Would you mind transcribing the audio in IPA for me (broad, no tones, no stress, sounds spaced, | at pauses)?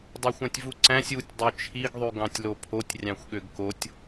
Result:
dˤ ɑ xʷ æ̃ tʲ v u ǀ æ̃ sʲ u tʲ dˤ ø t͡ʃʰ i ɡ ðˤ y ɡ ɑ̃ tʲ l o pʰ o tʲ rʲ ɑ̃ xʷ ɠ ø ɡ k o tʲ